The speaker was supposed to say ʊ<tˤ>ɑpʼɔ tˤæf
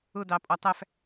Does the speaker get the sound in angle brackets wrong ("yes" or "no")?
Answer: yes